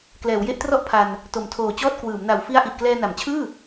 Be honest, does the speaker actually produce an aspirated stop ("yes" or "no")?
yes